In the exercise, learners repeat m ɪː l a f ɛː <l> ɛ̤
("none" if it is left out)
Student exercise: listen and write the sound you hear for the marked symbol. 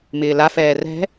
r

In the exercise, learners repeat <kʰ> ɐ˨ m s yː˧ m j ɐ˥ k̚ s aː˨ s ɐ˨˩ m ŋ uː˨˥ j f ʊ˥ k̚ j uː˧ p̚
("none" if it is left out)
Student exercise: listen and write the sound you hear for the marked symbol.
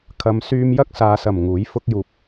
kʰ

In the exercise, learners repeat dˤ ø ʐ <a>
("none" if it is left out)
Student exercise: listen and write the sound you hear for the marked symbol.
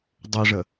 ə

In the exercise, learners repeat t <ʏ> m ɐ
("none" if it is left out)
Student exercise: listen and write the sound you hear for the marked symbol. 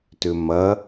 ʏ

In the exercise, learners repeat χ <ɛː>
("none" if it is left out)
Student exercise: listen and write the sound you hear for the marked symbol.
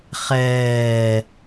ɛː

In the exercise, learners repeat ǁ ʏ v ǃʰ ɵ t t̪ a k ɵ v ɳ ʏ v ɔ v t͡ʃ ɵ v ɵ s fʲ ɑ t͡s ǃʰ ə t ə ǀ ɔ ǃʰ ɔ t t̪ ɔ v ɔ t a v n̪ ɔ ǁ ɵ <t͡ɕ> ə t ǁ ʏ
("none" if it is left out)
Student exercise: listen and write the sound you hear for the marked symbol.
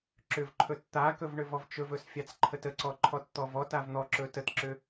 t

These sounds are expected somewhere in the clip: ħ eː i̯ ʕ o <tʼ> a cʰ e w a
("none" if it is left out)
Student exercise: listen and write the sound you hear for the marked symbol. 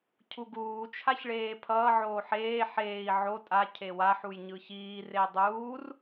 tʼ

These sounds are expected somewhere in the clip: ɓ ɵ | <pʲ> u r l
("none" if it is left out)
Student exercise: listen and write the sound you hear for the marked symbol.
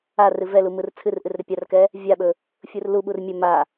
fʲ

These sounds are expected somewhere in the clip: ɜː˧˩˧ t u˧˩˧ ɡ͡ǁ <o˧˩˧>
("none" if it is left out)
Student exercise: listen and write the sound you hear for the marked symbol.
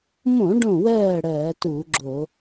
o˧˩˧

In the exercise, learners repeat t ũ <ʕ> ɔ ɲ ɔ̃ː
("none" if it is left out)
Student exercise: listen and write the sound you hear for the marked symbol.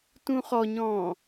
χ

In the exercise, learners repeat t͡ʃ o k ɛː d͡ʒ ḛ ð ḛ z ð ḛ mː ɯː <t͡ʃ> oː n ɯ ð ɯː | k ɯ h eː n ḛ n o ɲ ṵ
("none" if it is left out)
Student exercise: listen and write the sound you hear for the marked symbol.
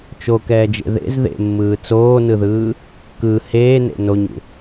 t͡s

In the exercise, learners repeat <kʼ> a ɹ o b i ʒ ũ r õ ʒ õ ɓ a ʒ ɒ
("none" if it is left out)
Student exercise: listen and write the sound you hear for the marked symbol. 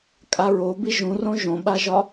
kʼ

